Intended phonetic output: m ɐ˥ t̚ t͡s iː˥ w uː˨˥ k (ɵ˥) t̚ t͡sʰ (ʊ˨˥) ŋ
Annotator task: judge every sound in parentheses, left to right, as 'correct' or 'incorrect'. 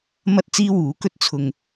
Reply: correct, incorrect

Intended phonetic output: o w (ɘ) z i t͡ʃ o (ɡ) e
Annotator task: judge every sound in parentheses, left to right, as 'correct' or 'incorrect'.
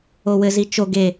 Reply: correct, correct

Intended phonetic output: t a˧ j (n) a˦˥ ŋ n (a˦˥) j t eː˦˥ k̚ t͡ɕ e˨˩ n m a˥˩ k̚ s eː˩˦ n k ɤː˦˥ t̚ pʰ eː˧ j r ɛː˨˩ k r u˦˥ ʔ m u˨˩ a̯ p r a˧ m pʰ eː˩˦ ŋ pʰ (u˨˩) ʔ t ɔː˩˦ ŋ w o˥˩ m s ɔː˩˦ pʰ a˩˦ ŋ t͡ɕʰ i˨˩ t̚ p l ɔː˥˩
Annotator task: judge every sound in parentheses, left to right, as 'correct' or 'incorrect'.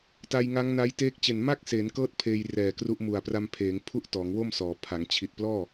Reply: incorrect, correct, incorrect

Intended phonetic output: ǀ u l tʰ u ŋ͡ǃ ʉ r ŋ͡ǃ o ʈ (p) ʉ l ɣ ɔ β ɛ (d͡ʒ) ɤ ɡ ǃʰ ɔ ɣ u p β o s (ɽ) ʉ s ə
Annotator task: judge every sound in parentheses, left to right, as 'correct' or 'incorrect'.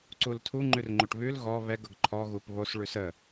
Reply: incorrect, incorrect, incorrect

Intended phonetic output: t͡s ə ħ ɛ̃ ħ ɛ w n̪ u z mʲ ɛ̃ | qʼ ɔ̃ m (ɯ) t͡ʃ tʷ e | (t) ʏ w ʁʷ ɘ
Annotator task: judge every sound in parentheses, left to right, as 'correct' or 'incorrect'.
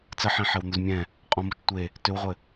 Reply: incorrect, correct

